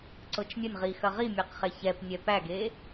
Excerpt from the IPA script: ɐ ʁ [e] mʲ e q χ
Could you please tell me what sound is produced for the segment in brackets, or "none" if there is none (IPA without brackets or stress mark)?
i